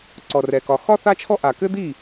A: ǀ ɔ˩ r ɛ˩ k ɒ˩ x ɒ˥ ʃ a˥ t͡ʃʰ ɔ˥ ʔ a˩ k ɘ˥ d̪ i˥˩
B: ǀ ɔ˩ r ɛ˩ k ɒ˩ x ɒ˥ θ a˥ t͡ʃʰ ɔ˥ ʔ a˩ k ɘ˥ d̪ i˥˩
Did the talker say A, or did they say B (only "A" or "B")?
B